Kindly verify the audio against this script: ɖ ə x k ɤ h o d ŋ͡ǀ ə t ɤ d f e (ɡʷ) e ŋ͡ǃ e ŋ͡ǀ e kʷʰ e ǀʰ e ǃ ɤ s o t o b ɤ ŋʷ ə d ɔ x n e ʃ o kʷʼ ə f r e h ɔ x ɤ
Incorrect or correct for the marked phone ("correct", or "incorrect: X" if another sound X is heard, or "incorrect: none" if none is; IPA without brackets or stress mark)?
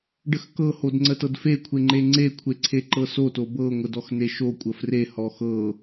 incorrect: kʷʰ